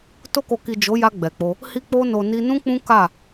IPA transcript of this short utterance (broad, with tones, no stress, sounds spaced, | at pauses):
t o˧ k o˨ k i˨ d͡ʒ o˨˦ j a˧ ɡ͡b ɛ˨ k͡p o˧ | h i˧ k͡p o˧ n o˨ n i˧ n ũ˦ k͡p ũ˦ k a˦˨